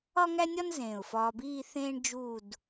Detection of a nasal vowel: present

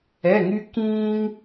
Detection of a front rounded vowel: present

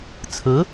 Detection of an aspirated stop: present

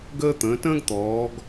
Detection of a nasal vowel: present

